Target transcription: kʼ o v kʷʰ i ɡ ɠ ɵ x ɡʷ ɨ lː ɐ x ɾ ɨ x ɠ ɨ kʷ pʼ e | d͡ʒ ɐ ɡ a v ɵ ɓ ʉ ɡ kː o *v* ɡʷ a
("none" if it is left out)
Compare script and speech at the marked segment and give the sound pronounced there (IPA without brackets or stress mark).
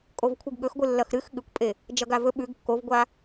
v